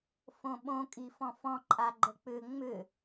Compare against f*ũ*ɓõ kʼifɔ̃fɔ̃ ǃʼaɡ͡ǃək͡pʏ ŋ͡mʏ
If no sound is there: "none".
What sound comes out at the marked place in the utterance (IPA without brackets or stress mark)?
õ